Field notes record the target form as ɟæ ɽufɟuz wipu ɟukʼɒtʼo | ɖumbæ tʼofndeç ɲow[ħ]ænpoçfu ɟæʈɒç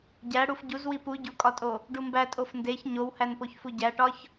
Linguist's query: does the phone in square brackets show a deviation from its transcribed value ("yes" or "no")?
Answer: yes